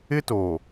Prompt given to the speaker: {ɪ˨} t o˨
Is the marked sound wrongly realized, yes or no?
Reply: yes